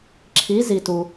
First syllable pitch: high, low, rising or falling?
rising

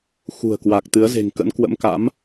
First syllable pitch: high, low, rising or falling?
low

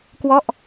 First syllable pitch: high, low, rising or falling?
falling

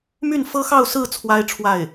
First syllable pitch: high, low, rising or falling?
falling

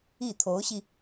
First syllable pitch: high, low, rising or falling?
falling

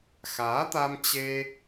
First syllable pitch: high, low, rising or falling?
rising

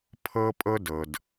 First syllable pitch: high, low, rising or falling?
high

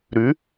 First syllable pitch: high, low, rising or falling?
rising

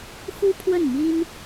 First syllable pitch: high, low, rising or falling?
high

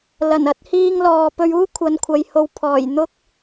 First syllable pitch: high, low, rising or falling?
low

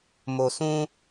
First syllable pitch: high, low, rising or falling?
low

